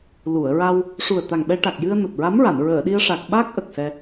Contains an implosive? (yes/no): yes